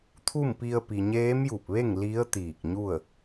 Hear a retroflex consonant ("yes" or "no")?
no